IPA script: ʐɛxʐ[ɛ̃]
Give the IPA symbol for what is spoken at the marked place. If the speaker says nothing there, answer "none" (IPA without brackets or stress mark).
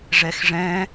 ɛ̃